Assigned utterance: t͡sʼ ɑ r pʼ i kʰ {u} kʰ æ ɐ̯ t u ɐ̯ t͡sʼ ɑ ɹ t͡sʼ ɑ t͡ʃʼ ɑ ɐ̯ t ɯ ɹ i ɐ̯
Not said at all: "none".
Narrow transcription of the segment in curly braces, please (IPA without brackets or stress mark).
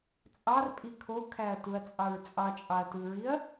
o